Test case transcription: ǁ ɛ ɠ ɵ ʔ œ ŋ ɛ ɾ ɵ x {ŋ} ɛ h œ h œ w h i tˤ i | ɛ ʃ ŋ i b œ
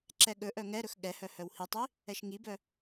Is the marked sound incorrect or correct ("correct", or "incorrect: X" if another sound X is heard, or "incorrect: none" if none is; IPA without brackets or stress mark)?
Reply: incorrect: ɠ